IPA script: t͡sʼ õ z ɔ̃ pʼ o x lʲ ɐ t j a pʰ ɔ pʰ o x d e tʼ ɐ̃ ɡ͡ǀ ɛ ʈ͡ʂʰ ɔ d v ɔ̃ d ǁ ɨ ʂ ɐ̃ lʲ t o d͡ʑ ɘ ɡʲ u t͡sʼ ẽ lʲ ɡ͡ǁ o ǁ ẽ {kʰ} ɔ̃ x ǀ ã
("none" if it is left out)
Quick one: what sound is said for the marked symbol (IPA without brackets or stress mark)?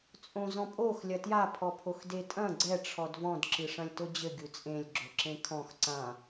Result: kʰ